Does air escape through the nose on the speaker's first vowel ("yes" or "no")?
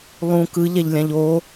yes